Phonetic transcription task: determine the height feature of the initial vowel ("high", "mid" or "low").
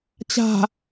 low